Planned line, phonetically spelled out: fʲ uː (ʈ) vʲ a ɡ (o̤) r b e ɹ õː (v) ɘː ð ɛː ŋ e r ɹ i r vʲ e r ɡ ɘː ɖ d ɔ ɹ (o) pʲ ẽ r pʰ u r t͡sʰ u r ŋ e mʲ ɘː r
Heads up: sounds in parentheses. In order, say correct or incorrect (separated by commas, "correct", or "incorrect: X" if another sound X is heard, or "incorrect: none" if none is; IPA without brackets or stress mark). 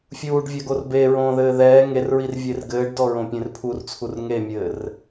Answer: incorrect: ɖ, incorrect: o, incorrect: ð, incorrect: õ